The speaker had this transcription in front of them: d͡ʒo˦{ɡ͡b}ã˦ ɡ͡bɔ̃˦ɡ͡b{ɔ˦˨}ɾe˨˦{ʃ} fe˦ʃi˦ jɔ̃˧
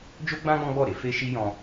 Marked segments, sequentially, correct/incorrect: correct, correct, incorrect: none

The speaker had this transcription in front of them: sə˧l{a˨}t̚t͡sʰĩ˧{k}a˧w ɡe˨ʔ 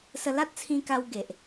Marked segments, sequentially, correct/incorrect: incorrect: a˦, correct

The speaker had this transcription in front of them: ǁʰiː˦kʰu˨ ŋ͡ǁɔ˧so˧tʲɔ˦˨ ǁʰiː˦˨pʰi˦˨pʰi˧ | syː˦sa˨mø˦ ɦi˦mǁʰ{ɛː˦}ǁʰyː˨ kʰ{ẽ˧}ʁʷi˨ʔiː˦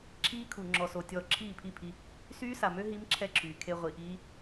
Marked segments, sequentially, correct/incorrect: incorrect: ɛ˦, incorrect: e˧

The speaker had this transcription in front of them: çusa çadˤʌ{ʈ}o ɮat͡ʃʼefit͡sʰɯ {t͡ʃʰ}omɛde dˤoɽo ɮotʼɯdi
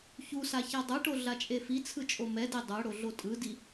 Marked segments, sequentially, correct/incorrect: correct, incorrect: t͡ʃʼ

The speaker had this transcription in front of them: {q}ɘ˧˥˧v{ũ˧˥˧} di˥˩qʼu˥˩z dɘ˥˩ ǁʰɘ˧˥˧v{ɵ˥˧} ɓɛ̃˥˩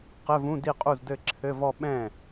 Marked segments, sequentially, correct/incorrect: correct, correct, incorrect: ɔ˥˧

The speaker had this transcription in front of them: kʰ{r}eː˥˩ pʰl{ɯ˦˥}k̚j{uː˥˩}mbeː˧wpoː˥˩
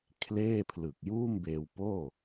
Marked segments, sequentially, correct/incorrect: incorrect: l, incorrect: ɯ˨˩, correct

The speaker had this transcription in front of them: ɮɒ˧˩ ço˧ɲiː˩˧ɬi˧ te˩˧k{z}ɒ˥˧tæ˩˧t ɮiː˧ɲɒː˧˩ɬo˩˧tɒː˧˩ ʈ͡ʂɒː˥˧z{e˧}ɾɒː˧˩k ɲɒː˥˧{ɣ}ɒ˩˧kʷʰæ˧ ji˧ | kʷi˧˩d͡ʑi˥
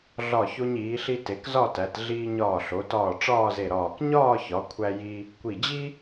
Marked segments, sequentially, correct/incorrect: correct, incorrect: e˧˩, incorrect: ç

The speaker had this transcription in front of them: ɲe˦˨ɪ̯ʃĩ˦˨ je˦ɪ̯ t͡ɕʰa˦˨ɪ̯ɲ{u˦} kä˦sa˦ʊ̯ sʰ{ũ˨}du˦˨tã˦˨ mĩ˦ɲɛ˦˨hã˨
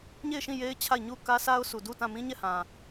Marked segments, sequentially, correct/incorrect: incorrect: u˦˨, incorrect: u˨

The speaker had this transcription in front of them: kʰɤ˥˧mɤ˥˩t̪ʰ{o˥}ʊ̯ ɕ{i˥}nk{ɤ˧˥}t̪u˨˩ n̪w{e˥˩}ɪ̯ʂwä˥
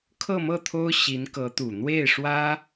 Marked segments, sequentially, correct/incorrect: correct, incorrect: i˧˥, correct, correct

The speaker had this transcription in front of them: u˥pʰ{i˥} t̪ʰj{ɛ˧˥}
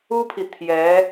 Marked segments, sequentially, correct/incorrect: incorrect: i˨, correct

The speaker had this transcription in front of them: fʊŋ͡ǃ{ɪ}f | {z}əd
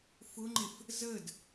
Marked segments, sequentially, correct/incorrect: correct, correct

